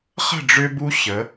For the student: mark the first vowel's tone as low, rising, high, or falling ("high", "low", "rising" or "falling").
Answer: falling